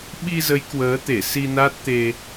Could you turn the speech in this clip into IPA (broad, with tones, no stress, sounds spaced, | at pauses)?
ɓ i˧ z ə˨˦ j k w əː˨˦ t̪ e˧˩ s i˧ n a˦˥ t̚ t̪ e˧